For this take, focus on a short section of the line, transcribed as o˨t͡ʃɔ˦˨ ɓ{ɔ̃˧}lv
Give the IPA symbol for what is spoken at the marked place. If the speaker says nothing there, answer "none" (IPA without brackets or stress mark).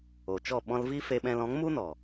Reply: ɔ̃˧